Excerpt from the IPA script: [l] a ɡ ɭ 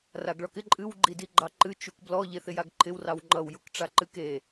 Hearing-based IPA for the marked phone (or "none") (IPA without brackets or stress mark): r